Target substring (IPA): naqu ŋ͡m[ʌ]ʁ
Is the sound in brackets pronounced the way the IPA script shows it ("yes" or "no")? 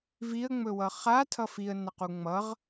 yes